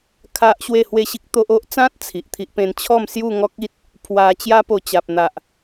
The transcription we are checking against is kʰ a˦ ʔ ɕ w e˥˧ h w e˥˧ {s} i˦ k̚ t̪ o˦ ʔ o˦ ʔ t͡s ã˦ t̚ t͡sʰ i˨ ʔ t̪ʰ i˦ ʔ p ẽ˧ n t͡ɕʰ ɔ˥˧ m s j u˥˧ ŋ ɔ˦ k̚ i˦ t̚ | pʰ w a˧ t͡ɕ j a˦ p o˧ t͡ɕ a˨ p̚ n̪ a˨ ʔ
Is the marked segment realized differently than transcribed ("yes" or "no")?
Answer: yes